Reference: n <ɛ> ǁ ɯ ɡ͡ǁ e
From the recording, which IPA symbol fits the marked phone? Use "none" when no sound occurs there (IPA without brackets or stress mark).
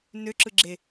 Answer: ø